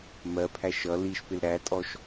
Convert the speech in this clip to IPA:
m ɜ pʰ æ ʃ ʌ l i ʃ p ɪ l ɾ æ tʼ ɔ ʃ

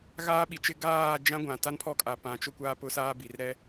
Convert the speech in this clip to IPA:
ɣ aː˦ ɓ i˨ t͡ʃ ɪ˦ ɡ aː˦˨ d͡ʒ ã˦ ɡʷ ã˨ t a˦ n pʰ ɔ˦ kʼ a˨ p ã˨ t͡ʃ ʊ˦ kʷ aː˦ p ʊ˦ s aː˦ b i˨ r ɾ ɛ˦

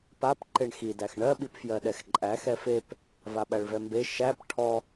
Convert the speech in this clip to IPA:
p a p ǃ e ɳ x i d æ x ɳ ɜ ɓ i p f j ɜ ɗ ɛ x ǃʼ æ x ɛ f e p | v a ɓ æ ɭ v ɛ m b e ʃ æ p ʈʰ ɔ

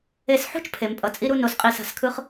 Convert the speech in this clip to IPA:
e˧ s ħ ṳ˥ t͡ʃ pʰ e˩˧ m pʼ ʌ˧˩ t͡sʼ i˥ ɾ u˥ n o˩˧ s qʼ i˧˩ s a̤˧˩ s kʰ ɯ˥ χ

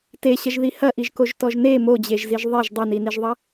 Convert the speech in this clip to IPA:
t e ɕ ɐ ʒ ð i h ɐ ʔ i ʒ k o ʒ t ɔ ʒ n e m o d͡ʑ e ʒ z i ʒ ðˤ e ʒ dˤ ɐ n i n i ʒ ðˤ ɐ

